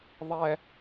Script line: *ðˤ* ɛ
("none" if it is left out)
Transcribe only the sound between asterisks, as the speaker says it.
ðˤ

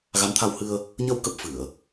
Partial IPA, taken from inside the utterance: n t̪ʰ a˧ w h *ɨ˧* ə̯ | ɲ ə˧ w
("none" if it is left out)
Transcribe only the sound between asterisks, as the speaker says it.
ɨ˧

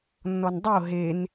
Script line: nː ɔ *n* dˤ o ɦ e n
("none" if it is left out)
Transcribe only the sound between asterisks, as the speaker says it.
n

